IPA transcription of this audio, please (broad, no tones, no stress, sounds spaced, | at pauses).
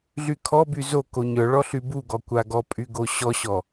ɮ y kʰ ɔ b y z o k o ɲ œ ɭ ɔ ɬ y b u ɡ ɔ kʷ a ɡ ɔ pʼ y ɡ o ɕ ɔ ɕ ɔ